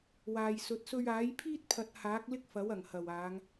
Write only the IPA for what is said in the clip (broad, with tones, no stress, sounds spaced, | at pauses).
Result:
w aː˨ j s ɵ˨˥ t̚ s ɵ˧ ɥ aː˨˥ j pʰ iː˥ t̚ pʰ ɐ˨˥ t̚ h aː˨˥ k̚ l ɪ˥ k̚ f ɐ˨˥ w ɐ˨˩ ŋ h ɐ˨˩ w aː˨˧ ŋ